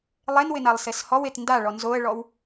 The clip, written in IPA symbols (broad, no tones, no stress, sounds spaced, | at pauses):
lˠ e n w ɪ n a lˠ s e s h ɔ w e t n d a ɭ ɔ n z o ə̯ ɭ ɔ w